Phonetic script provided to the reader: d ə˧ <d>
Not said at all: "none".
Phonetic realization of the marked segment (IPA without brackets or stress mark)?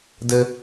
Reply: none